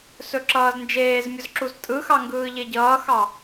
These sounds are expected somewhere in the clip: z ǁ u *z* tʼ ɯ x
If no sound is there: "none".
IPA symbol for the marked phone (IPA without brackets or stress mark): z